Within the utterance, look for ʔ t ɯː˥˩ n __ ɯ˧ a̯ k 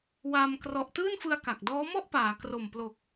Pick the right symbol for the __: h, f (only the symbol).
f